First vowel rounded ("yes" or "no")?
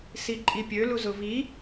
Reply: no